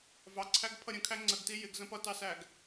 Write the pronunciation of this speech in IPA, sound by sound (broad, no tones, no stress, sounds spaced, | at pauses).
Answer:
v ɑ ǀʰ æ ɡ pʰ ʌ ɾʲ ə̃ kʰ æ ŋ͡ǀ ə ɡ t i j ɪ ɡ z ə̃ p ʌ t ɑ s æ ɡ